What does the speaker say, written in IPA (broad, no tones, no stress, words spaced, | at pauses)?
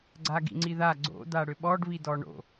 ɡ͡ǀaɡḭŋ͡ǀiða ɡ͡ǀo̰ daɽʏɓɔɖ βidɔɳo̰